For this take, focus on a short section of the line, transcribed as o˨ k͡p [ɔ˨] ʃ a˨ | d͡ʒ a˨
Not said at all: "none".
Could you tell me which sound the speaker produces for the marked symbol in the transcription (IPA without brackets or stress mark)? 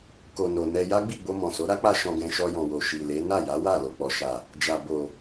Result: ɔ˨